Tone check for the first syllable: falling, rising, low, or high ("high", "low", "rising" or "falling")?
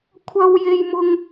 high